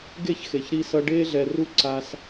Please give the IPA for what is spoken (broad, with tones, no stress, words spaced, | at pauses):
ɡe˦˨çxe˨çɾiː˧sʌ˧ ɖeː˧ɮɛ˨ru˧ ǀa˧s